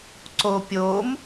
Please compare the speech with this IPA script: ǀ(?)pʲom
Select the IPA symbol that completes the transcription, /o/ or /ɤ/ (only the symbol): o